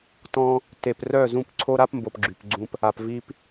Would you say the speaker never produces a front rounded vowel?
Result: no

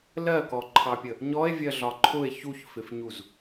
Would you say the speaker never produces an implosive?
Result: yes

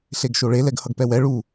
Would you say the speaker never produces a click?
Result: yes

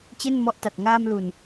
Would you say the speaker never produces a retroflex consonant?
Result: yes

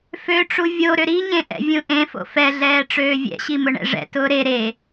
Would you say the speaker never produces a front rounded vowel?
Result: no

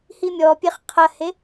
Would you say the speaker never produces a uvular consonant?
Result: no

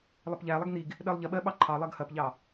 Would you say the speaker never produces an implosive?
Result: no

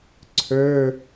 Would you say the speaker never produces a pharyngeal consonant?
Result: yes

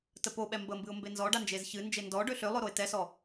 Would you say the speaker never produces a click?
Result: yes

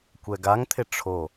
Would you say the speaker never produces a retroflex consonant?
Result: no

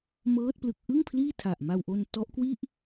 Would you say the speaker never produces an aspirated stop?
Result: no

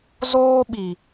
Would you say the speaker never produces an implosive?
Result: no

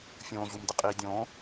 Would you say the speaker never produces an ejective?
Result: no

